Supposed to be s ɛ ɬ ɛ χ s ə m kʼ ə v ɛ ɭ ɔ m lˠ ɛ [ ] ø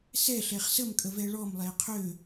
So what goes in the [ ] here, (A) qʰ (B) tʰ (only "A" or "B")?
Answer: A